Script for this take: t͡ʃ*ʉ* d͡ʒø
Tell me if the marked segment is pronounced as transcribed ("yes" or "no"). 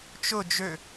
no